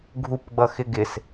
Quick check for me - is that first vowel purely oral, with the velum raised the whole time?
yes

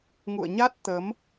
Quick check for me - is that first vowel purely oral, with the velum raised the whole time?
yes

